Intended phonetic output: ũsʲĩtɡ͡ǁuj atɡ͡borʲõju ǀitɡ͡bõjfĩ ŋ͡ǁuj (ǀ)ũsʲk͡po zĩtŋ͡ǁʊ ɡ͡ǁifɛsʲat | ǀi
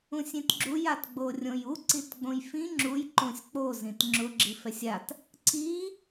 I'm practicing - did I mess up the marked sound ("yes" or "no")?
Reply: yes